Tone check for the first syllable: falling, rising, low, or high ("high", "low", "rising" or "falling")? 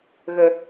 low